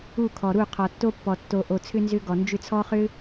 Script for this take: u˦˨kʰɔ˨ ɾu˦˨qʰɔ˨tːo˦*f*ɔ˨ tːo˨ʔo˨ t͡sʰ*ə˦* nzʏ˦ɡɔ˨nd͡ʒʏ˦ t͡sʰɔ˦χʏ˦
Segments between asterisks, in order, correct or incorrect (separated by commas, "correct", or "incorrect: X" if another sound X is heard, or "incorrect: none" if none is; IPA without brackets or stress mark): incorrect: pː, incorrect: ʏ˦